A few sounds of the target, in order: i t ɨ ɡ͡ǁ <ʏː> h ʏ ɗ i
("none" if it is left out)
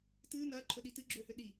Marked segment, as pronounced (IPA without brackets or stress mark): ʏː